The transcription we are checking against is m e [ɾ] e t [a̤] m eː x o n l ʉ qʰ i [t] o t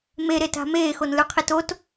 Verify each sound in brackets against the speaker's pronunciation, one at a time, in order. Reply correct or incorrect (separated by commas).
correct, correct, correct